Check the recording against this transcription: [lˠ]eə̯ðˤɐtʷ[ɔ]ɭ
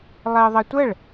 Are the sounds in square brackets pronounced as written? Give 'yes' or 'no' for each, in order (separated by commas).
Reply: yes, no